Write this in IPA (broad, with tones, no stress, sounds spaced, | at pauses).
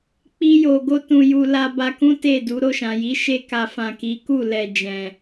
k͡p i˧ j o˨ ɡ o˧ t ũ˨ j u˨ l a˧ b a˧ k ũ˦ t e˦˨ d u˨˦ ɾ o˦˨ ʃ ã˨ j i˨˦ ʃ e˦ k a˧ f ã˨ k i˨˦ k u˦˨ l ɛ˨ d͡ʒ ɛ̃˨